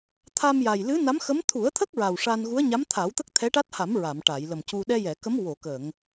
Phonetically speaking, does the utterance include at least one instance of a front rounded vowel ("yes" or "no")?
no